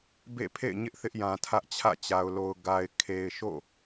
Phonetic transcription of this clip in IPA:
b ḛ˦˨ pʰ ḛ˦˨ ɪ̯ ɲ ɪ˦ ʔ θ ɪ˦ ʔ j ã˨ tʰ ä˦ ʔ t͡ɕʰ ä̰˦˨ t͡ɕ a˨ ʊ̯ l o˨ ʊ̯ ɡ a˨ ɪ̯ kʰ e˨ ɪ̯ ʃ o̰˦˨

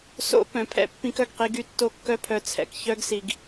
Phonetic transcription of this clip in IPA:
s o̰˦ p œ̃˨ pʰ ɛ̰˦ pː ĩ˦ k œ˨ ɡ q i˦ ɡ y˦ tː o˦ kː œ˦ pʰ œ˨ t͡sʰ ɛ̰˨ k ç œ˦ ɡ s i˨ ɡ

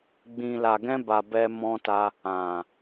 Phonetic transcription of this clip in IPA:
ɡ͡b ĩ˨ l a˨ ɡ ɛ̃˧ b a˨ b ɛ˧ m ɔ̃˧ t a˧ | ã˨

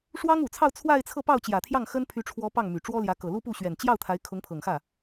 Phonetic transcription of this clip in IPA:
ʂ w ɑ˥ ŋ u˨˩ t͡sʰ ɑ˥˧ ʊ̯ t͡sʰ w a˥˧ ɪ̯ t͡sʰ ɤ˥˧ p ɑ˥˩ ʊ̯ t͡ɕ j ä˨˩ t̪ʰ j ɑ˥˩ ŋ x ə˥ n pʰ y˧˥ ʈ͡ʂʰ w ɔ˧˥ p ɑ˥˩ ŋ m y˨˩ ʈ͡ʂ w ɔ˥ l j ä˧˥ k ɤ˨˩ l u˥ p u˥˩ ɕ ɥ ɛ˨˩ n t͡ɕ j ɑ˥˩ ʊ̯ t̪ʰ a˧˥ ɪ̯ kʰ ʊ˧˥ ŋ pʰ ɤ˨˩ ŋ x ä˥˩

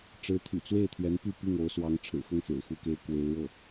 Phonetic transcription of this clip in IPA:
ʈ͡ʂ ɻ̩˧˥ t̪ʰ y̰˨˩ t͡s w e˥˩ ɪ̯ t̪ʰ ɥ ɛ˧˥ n p y˥˧ p i˥˩ ŋ o˧˥ ʊ̯ s w ɑ˧˥ ŋ ʈ͡ʂʰ ɻ̩˨˩ x ɤ˥˩ ŋ f ḛ˨˩ ɪ̯ x u˥˩ k e˥ ɪ̯ k w e˧˥ ɪ̯ ɻ ɤ˥˩

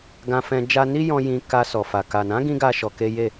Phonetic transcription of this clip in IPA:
ɡ ã˧ f ɛ̃˧ d͡ʒ a˧ n i˦ j ɔ̃˧ j ĩ˧ k a˧ s ɔ˨ f a˨ k a˨ n ã˨˦ ɡ ĩ˧ ɡ a˦ ʃ ɔ˧ k e˦ j e˦˨

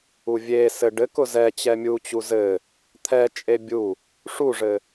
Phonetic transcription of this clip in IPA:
u vʲ e s ɘ ɖ ɘ k ʊ z ɛ t͡ɕ ɛ mʲ u t͡ɕ u z ɘ | t̪ʰ ɛ t͡ʃʼ e bʲ u | ʂ u ʐ ɘ

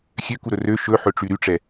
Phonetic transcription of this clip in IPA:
xʲ ø k u ɾ ɵ r ø ʃ ɵ ħ ɵ ʈ͡ʂ y ɾ y ʈ͡ʂ ɛ

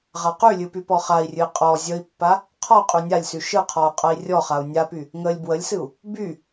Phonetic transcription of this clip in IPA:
ʁ a q y lʲ ɨ p y p ɔ χ a i̯ rʲ ɨ i̯ qʼ ɔ zʲ ə i̯ pː a | qʰ ɔ qʼ y nʲ a lʲ s y ʃ ɨ qʰ ɔ u̯ qʼ ə i̯ rʲ ɔ χ a u̯ nʲ a p y | ŋ ə lʲ b w ə lʲ s ɨ u̯ | b y

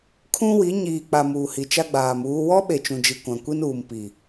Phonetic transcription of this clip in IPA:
kʰ ũ˦ w i˨˦ ɲ iː˨ k͡p a˨ m uː˨ h i˨ t͡ʃ a˦ ɡ͡b aː˨ m uː˦ w ɔ˦ ɓ e˨ t͡ʃ ũ˨ d͡ʒ i˨ kʷ ã˨ kʷ i˦ n uː˨ m p i˨

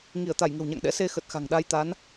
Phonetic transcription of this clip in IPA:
ŋ i˧˩ ə̯ t̪ a˧˩ j ŋ ə̤˨˩ w ɲ a̰˧˨ ŋ ɗ ɛ̰˧˥ s e˧ x ə˨˩ t̚ x a̤˨˩ ŋ ɗ a˧ j t̪ a˨˦ n

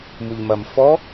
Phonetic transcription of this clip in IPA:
m u ʎ m ɐ m f ɔ

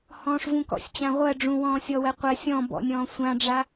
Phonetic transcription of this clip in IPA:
h ɔ̃ː ʂ v ũ k ɔ̰ sʲ t͡ɕ ã ʁʷ ɜ ɖ͡ʐ ũ w ɔ̃ː sʲ ɔ w ɜ qʷ ɜ sʲ ɔ̃ b ɔ̰ nʲ ɔ̃ː sʷ ã ɖ͡ʐ a

